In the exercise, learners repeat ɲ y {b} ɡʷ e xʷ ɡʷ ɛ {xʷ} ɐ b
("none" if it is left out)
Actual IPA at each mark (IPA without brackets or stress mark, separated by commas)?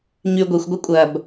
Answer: none, kʷʼ